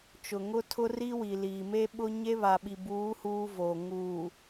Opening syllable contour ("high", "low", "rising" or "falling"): low